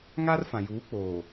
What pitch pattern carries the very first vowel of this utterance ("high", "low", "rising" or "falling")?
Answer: high